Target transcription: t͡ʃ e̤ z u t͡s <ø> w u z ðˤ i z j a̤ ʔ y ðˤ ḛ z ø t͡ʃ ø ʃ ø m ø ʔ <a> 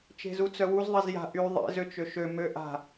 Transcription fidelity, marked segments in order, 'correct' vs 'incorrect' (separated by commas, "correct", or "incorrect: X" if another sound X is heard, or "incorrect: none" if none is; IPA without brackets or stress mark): incorrect: œ, incorrect: a̤